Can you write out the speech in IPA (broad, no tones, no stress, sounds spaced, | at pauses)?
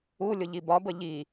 u lʲ ʊ ʎ i b ɒ b ə ʎ i